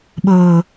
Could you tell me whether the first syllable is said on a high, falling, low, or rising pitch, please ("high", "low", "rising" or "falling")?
low